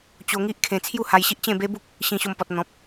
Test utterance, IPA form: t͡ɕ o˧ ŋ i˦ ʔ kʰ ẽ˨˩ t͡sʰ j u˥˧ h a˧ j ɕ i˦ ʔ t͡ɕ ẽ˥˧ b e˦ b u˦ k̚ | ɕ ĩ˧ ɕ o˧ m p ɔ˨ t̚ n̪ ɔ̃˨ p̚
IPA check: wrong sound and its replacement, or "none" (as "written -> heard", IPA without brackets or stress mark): none